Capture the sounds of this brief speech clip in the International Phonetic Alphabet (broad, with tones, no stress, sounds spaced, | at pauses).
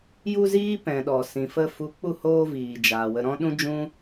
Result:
j u˧ z iː˦ p ɛ̃˨ ɗ ɔ˨ s ĩ˨ f ə˧ f u˨˦ k͡p u˧ h oː˧ v iː˨ d͡ʒ aː˨ w ə˨ ɾ ɔ̃˧ ɗ ũ˦ d͡ʒ ũ˦